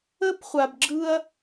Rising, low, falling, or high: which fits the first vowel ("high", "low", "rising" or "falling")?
high